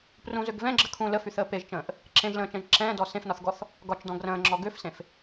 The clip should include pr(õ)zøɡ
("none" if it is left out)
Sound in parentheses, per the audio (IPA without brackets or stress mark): ũ